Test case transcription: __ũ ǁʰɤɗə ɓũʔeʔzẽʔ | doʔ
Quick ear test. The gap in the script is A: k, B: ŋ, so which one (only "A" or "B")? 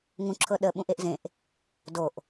B